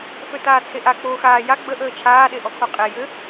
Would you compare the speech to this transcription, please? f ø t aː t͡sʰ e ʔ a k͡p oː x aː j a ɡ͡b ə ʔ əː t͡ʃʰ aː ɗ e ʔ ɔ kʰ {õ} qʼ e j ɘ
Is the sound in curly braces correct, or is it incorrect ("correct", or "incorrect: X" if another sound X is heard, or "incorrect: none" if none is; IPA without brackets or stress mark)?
incorrect: o